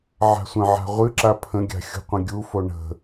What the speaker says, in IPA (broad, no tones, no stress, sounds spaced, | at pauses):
ʕ a̤ sʷ ə̃ ʕ a̤ ʁʷ ɨ ǁ a pʰ ə̃ ɡʲ a̤ xʲ ṳ qʷ ə̃ ɡʲ u f o ɳ ə̤